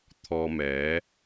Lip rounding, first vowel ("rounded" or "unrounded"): rounded